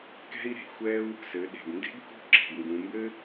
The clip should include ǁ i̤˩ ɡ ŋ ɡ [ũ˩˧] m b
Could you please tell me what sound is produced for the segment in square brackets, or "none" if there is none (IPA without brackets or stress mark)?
ũ˩˧